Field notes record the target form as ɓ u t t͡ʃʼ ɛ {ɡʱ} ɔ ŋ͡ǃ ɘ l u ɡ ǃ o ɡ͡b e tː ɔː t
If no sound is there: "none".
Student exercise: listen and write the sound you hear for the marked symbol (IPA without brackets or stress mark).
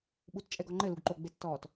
ɡ